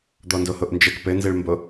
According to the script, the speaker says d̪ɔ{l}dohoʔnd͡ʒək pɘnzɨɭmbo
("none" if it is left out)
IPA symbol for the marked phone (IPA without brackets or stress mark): n